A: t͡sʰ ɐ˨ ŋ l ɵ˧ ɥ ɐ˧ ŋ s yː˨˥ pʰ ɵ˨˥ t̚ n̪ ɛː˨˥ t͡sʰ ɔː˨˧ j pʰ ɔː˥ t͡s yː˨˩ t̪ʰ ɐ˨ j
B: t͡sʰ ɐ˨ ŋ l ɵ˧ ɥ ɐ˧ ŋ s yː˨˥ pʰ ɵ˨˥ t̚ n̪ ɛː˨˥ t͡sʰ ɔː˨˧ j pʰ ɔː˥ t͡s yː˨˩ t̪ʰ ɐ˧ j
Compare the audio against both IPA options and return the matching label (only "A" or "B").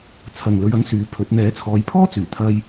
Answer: B